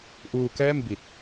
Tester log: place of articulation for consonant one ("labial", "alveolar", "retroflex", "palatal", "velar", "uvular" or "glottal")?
glottal